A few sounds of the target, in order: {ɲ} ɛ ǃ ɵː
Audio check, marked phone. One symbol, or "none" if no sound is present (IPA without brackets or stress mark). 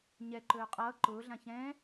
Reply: ɲ